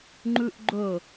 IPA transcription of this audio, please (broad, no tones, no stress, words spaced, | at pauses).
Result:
ŋ͡ǃʉʔɡ͡ǃɵ